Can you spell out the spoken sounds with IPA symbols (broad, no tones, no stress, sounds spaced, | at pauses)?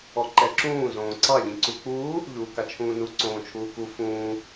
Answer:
ɔ ǃ ɛ ǁ ũː z õː ǀ ɑ ʎ ĩ ǀ u k͡p uː | ʎ uː k a t͡ʃʰ ũː n u ǀ õː t͡ʃʰ uː k u f ũː